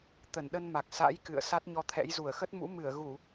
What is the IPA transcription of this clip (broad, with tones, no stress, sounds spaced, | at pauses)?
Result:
t̪ ə˧˩ n ɗ ə˧ n m a˨˩ k̚ s a̰˧˥ j k ɨ̰˧˨ ə̯ s a˦˥ t̚ ɲ ɔ˧ t̪ʰ ɛ̰˧˥ j z u˧˩ ə̯ x ə˦˥ t̚ m ṵ˧˥ m ɨ˧˩ ə̯ ɣ u˧˩˨